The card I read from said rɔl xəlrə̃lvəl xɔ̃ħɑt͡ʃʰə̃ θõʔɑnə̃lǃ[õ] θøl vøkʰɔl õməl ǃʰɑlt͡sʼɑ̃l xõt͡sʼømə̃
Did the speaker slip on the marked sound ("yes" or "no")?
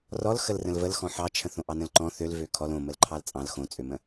yes